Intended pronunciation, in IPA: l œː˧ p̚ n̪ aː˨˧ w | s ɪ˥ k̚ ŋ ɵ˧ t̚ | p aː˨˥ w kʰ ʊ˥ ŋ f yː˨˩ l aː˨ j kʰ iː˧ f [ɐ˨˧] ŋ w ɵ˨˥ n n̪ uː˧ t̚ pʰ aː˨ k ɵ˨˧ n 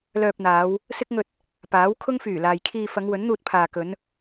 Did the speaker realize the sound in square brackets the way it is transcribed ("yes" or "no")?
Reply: yes